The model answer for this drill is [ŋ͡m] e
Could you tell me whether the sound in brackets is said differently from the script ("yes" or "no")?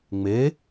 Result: no